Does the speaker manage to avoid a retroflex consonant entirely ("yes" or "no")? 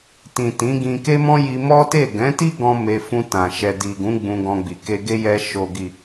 yes